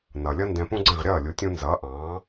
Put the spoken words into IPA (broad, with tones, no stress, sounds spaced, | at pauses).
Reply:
n ʌ˩ lʲ ʌ˥ n d ɛ̃˧ p ũ˥ ɡ͡ǀ ɛ̃˥˩ ʁ ɾʲ ʌː˥˩ lʲ u˩˥ tʲ ũ˧ n z ʌː˩˥ ʔ ɑ̃ː˩˥